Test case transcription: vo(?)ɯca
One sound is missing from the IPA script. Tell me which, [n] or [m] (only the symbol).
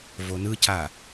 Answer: n